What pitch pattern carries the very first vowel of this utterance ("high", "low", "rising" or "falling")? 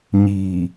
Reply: low